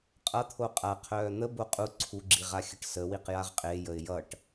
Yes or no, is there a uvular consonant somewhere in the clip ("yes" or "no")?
yes